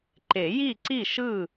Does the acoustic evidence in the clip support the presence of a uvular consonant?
no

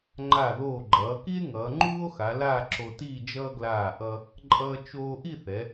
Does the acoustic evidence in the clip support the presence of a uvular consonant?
no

